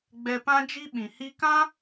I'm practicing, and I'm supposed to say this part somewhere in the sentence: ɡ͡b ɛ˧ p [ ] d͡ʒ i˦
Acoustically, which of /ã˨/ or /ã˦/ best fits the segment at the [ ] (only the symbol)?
ã˦